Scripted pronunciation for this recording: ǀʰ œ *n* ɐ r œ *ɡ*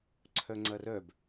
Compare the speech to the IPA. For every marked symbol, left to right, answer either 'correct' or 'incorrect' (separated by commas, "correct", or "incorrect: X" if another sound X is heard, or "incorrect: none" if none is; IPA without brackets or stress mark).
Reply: incorrect: ŋ͡ǀ, incorrect: b